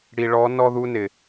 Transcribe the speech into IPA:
ɽ i˨ ɭ ɔ˨˦ n ɔ˦ ð u˦ n ɪ˨

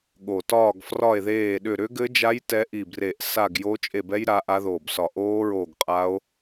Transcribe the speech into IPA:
ɠ o˨˩ t ɒː˦˨ ɡ f r ɒ˦˨ e̯ ð eː˦˨ ɗ ʏ˦˨ ɾ ʏ˦˥ ɡ ɘ˦˥ d͡ʒ a˦˥ j t ɛ˦˥ ʔ i˦˨ b r e˦˨ ʔ s a˦˨ ɡ j o˦˥ t͡ʃʼ e˦˨ b ɛ˦˥ j ɾ a˦˥ ʔ a˦˥ ð oː˦˨ b s ɒ˦˨ ʔ oː˦˥ ɹ oː˦˨ ɡ qʼ a˦˥ o̯

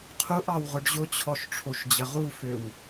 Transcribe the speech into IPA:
qʰ u ʔ ɑ w ʁ ʊ ɖ ʑ ʊ t͡ɕʰ ɔ ʃ ʈ͡ʂʰ o ʃ d͡ʑ ə ʁ u f ø w

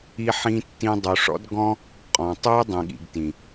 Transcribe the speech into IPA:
i˦ ħ ĩ˦ tː ĩ˦ dˤ u˨ ʂ ɔ̰˦ d ɡ ɔ̃˦ | qʼ ɔ̃˨ tˤ u˦ dˤ ĩ˨ ɠ ḭ˨ ɡ t ĩ˨

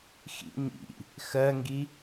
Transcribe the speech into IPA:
x ḭ ɲ ḭ | x ɜ ŋ ɡ i

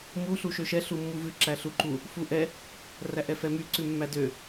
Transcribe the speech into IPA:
m u ɬ u ʃ ø ʃ ɛ ɬ u mː u v ʉ ǁ æ ɬ u ǃ u | f u ʔ ɛ | r æ ʔ ɛ f ɛ m y ǀ ʉ mː æ d ø

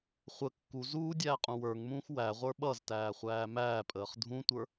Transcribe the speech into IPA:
χʷ ə kː u z uː dʲ æː qʼ ũ w ə˞ ŋ m ũː x w æ ʁʷ ə˞ ɓ ʌ z t æː χʷ æː m æː pʼ əː χ dʱ ũ tʷ ə˞

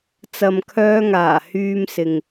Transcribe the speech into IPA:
t͡s ɐ˨ m kʰ œː˧ ŋ aː˨˩ h yː˧ m s ɪ˨ ŋ

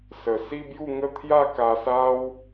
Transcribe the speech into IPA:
s ə˨˩ s i˦ b j u˥˧ ŋ ə˥˧ t̪ʰ j a˥˧ k a˧ s a˦ w

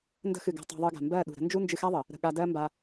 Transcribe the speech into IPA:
n d ə̤˧ x ɨ˨ ɡ a̤˧ tˤ a̤˧ ðˤ ɨ˧ ɡ a̤˨ m b ɜ˦˨ ɗ ṳ˨ ɾ ə̤˦ n d͡ʒ u˦ n d͡ʒ ɨ˧ x a˦ ðˤ ə˨ | ɾ ə̤˧ ɠ a˧ d ɜ˦ m b a˧

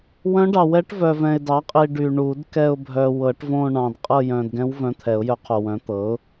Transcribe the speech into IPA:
w œ̃˧˥ ɖ ɑ˨ w ɛ˧˥ ʈ v œ˨ v ɛ̃˨ ɪ̯ d ɑ˩˥ qʼ i˨ ɖ y˨ ɳ u˨˩˦ d k ɛ˦˨ ʊ̯ bʱ œ˨ w ɤ˨˩˦ ʈ v õ˦˨ ɳ ɑ̃˨ d qʼ ɤ˦˨ j œ̃˨ d ɡ ɛ̃˧˥ w v œ̃˧˥ t̪ʰ ɛ˨˩˦ ʊ̯ j œ˧˥ qʰ o˨ w œ̃˩˥ t̪ ɤ˩˥ ʊ̯

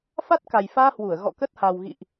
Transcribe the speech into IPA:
f a˦˥ t̚ k a˨˩ j f aː˧ h w u˧˩ ə̯ ɣ ɔ̰˧˨ k ə˦˥ t̚ h a˨˩ w ɣ ḭ˧˨ ʔ

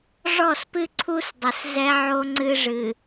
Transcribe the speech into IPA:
ʐ ɔ˦˨ s p ɨ˦ ǀʰ u˦ s dˤ ɘ˨ s z ɛ˦ ʕ o˦ ŋ͡ǀ ɨ˦ ʐ ɨ˨

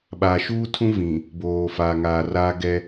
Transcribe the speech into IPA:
ɓ aː˨ ʃ uː˦ tʰ ũ˦ v ĩ˨ | b oː˨ f aː˨ ŋ aː˨ r aː˦ ɡ ɛ˦

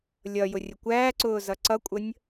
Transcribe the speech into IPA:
lʲ ʌ j ʊ rʲ ə kʷ æː ǀ ʊː z ʌ ǀ ʌ kʷʼ ə nʲ

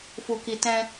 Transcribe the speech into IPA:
f u˨ k i˨ t ɛ̃˧

